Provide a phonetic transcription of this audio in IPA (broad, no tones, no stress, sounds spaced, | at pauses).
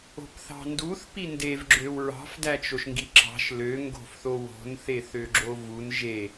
o̤ p θ ɑ̤ n d u θ p i n d e v ɡ͡ǁ ø w ɹ ɑ̤ f d æ t͡ʃ o ʃ ŋ ɡ i ǁ ɑ̤ ʃ l ø ŋ ɡ o̤ f θ o w o̤ n θ e θ ø ɡ͡ǁ o v u n ʒ e